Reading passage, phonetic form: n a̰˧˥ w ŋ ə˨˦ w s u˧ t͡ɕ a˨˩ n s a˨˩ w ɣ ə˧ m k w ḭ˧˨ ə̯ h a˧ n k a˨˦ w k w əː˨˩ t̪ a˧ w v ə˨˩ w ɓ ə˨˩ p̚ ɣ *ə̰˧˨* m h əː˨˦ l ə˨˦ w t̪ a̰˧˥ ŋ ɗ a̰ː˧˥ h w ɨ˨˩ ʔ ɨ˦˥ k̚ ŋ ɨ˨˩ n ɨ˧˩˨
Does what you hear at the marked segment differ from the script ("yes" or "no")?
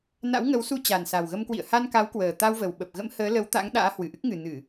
yes